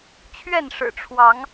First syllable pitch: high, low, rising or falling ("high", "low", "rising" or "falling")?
falling